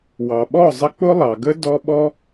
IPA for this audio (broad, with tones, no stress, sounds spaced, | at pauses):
w ɑ˨ ɓ ɔ˦˨ zˤ ə˧ k͡p ʊ˦ lˠ ɑ˨ ɡ ə˦ d ɔ˦ ɓ ɔ˦